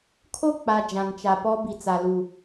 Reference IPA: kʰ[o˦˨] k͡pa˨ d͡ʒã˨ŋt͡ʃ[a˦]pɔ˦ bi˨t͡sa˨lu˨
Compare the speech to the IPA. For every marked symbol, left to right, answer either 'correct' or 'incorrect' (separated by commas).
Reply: correct, incorrect